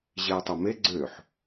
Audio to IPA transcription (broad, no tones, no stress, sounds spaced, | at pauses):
ʑ e ə̯ tˤ o m e ɡ͡ǀ ø ħ